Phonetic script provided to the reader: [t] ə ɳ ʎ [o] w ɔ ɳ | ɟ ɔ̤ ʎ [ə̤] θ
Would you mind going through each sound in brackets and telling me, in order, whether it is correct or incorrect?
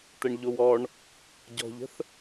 correct, correct, correct

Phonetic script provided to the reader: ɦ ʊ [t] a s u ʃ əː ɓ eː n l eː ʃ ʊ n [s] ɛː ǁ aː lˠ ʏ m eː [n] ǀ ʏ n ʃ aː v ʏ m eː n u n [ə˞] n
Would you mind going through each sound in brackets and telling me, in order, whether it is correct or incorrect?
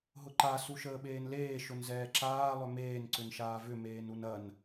incorrect: ǃ, incorrect: z, correct, incorrect: ɐ

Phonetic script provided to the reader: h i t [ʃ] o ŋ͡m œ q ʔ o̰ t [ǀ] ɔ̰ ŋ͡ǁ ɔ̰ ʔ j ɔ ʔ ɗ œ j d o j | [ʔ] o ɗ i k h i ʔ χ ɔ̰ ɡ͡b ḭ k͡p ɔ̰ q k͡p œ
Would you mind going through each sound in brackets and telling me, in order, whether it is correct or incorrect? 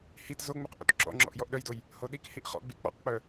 incorrect: z, incorrect: ǁ, incorrect: h

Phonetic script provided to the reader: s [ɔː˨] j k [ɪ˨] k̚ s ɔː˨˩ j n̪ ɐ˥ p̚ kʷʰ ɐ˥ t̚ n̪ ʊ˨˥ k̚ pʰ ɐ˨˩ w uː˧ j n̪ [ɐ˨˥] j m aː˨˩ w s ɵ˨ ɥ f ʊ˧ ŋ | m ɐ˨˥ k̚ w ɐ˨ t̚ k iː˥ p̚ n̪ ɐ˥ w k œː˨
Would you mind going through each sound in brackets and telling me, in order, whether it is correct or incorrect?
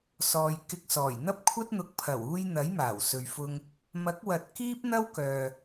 correct, incorrect: ɪ˧, correct

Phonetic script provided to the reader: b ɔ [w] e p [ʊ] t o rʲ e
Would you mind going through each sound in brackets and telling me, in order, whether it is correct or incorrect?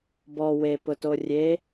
correct, correct

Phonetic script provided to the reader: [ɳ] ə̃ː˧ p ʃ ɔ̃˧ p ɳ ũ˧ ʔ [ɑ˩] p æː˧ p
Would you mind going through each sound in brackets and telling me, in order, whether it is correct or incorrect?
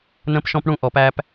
incorrect: n, incorrect: ɔ˩

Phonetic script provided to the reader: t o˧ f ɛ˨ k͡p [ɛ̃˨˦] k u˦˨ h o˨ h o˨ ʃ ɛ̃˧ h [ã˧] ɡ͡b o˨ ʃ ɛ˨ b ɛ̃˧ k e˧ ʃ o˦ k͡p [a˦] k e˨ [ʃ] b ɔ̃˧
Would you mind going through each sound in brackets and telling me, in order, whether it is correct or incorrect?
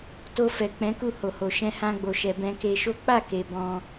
correct, correct, incorrect: a˦˨, incorrect: none

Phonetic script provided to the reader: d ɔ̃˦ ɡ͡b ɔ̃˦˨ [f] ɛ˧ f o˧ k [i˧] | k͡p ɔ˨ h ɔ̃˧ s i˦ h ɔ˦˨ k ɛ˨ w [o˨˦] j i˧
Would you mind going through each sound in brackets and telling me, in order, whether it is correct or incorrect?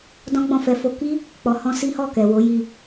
correct, incorrect: i˦, correct

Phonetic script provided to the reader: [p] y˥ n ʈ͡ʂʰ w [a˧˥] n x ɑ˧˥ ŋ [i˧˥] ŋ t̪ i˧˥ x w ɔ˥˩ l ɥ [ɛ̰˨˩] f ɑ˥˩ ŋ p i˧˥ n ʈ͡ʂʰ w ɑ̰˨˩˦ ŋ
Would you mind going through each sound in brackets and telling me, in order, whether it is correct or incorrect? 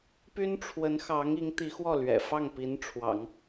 correct, incorrect: ə˧˥, correct, correct

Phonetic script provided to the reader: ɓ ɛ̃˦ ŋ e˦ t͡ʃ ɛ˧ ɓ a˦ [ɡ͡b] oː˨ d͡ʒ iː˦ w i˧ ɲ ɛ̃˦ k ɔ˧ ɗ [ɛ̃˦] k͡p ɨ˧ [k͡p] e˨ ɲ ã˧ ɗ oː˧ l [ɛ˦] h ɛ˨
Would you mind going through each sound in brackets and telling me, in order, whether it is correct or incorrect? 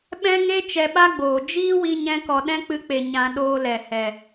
correct, correct, correct, incorrect: ɛ˨

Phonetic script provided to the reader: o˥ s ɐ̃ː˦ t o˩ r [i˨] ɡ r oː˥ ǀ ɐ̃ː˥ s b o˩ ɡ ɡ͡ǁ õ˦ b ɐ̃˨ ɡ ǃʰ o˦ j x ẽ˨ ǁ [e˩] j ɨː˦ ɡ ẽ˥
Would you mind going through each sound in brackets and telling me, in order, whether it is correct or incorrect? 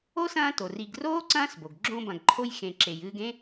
correct, correct

